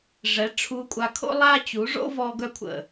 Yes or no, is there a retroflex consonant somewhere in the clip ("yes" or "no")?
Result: yes